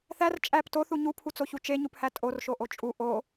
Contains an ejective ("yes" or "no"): yes